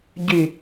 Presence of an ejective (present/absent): absent